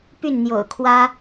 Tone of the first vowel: falling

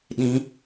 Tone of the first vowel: rising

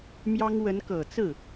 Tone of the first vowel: high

